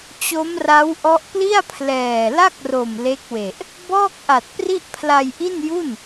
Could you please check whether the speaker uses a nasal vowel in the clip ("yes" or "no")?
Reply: no